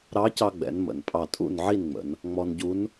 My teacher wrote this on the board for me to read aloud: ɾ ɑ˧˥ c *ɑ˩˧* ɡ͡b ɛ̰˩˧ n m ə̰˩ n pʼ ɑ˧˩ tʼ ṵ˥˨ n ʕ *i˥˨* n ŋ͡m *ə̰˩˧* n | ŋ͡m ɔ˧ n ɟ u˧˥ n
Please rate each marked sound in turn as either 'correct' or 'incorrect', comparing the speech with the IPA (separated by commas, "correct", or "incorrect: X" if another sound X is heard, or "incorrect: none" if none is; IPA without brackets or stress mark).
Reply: incorrect: ɑ˧, correct, correct